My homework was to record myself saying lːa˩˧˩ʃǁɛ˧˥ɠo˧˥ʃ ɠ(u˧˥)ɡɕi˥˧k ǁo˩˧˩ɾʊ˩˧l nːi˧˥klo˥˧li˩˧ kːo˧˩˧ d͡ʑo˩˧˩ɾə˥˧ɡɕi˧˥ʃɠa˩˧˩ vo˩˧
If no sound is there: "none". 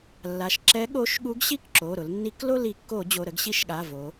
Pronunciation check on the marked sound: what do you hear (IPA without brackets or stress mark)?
u˧˥